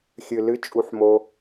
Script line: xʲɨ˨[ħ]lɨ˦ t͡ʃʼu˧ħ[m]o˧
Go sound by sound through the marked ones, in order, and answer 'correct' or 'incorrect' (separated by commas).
incorrect, correct